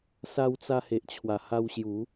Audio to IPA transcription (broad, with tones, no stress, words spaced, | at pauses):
sa˧wt͡sa˧he˨ʔ t͡ɕʰwa˨˩ha˧wɕju˨˦